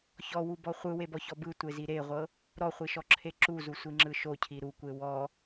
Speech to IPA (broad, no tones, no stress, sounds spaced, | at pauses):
ç ɔ w u b ɔ χʷ ɯ w e b ɔ ç ɔ b ɯ tʷ e z i ɾ e ʁʷ ɤ | ɾ ɔ χʷ i ʃ ɔ ǁʰ e ǁ u z u sʷ i ŋ͡ǁ ɯ ʃ o cʰ i ɾ u kʷ e w ɔ